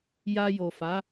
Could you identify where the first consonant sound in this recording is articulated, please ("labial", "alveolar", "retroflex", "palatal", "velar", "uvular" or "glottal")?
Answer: palatal